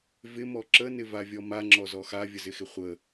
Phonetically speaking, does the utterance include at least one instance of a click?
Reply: yes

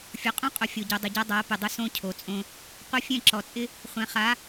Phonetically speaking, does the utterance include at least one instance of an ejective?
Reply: yes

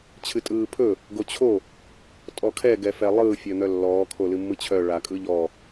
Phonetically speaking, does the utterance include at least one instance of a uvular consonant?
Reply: no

